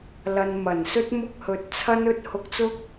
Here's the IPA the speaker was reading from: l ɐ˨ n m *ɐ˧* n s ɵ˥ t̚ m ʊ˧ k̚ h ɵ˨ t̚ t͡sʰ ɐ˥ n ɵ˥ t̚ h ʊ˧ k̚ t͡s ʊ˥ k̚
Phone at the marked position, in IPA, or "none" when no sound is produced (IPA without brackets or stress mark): ɐ˨˩